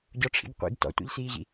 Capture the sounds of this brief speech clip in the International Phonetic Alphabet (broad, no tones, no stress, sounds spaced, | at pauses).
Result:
ɟ ɔ ʈ͡ʂʰ ḭ ɡ qʷ ḭ ɡ t ɔ̰ tʷ ḭ ʎ s iː ʑ ḭ